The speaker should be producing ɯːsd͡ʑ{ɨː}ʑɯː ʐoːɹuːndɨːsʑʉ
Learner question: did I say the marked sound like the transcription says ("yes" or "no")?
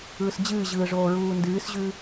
yes